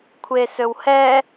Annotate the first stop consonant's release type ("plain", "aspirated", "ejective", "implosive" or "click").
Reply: aspirated